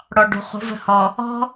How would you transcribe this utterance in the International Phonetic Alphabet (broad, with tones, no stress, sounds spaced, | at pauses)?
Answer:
ɽ ɔ˨ ɖ ṳ˨ χ ṳ˨˦ v ə̤˨ h ɔ˨ | ɔ̤˦